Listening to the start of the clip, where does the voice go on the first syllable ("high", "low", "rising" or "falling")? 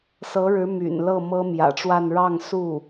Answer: rising